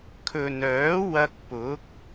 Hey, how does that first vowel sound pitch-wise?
low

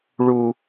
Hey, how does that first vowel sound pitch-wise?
high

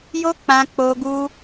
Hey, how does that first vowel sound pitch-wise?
high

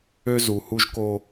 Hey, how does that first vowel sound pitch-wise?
high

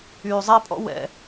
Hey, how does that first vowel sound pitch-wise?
low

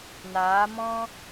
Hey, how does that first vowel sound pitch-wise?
rising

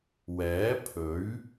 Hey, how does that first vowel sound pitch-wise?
rising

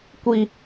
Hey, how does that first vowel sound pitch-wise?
high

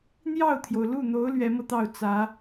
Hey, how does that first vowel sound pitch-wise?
falling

